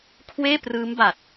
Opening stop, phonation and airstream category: aspirated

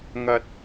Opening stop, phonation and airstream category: plain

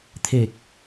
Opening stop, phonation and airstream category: aspirated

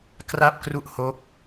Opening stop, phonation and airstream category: plain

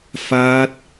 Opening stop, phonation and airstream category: plain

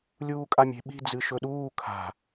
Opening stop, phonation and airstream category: ejective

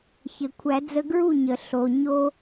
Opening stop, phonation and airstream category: aspirated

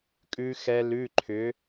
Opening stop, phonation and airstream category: ejective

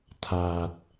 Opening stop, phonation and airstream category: aspirated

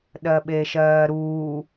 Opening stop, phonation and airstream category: implosive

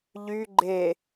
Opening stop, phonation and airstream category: click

